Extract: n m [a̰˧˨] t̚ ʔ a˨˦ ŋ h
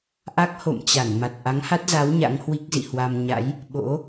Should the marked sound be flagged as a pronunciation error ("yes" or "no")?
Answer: yes